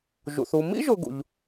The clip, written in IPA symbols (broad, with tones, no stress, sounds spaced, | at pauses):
ʒ ṵ˩ θ u˨ m ḭ˥ ʒ ʊ˨ ɡ ṵ˩ ʎ